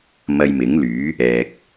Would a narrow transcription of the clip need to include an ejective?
no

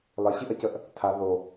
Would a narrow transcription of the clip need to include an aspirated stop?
yes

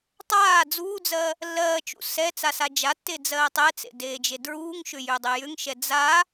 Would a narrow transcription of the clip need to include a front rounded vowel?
yes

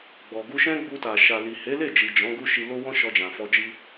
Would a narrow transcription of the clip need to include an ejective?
no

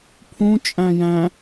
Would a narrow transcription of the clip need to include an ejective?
yes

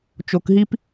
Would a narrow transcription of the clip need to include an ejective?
no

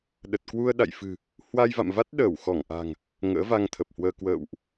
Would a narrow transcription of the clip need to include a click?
no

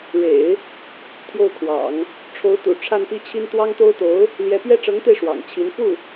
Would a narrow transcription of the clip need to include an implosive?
no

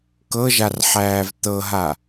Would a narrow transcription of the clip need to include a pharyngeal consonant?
yes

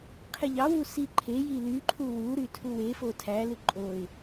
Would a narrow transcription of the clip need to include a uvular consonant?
yes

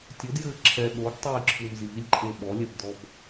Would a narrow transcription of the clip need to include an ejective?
yes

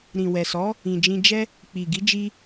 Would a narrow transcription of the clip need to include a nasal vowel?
yes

